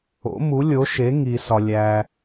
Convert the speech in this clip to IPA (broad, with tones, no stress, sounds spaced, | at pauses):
o̰˩˥ m u˩˥ lʲ o˩˥ ʃ e˩˥ ŋ i˩ s ɒ˩ lʲ æ˩